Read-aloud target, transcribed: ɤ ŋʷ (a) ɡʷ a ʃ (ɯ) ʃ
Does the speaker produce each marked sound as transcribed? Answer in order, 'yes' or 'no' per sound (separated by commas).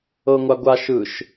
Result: yes, yes